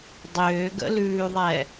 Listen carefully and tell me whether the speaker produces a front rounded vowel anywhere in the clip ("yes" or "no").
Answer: yes